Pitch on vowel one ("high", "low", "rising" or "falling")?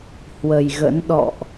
low